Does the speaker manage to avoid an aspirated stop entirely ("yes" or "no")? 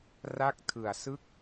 no